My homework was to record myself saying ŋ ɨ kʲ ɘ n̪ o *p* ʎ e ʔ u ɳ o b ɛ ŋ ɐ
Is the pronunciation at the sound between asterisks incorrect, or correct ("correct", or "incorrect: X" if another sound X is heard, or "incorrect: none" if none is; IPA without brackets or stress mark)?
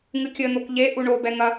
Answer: incorrect: k